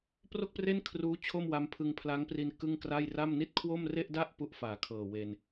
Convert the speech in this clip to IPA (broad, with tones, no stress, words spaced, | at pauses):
pro˥˩k̚pre˥˩nkʰruː˦˥ t͡ɕʰo˥˩mwa˦˥mpʰɯ˧ŋ pʰla˦˥ŋpri˧n kɯ˥˩ŋkra˥˩j ra˥˩m ni˥˩t̚kʰwo˥˩m re˥˩ʔda˥˩ʔ pu˥˩ʔfaː˨˩kʰɤː˨˩ we˧n